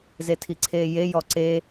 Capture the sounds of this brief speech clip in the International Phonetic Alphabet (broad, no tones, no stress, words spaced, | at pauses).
zetʰiǀʰeːje jɔǀe